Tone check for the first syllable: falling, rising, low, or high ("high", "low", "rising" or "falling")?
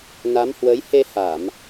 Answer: rising